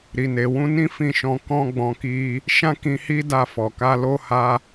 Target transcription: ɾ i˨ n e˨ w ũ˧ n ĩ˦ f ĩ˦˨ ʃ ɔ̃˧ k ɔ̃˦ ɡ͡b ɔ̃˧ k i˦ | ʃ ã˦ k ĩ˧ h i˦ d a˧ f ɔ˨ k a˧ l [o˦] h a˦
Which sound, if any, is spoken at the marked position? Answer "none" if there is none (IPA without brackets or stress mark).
o˦